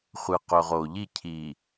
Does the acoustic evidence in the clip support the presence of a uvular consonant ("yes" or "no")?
yes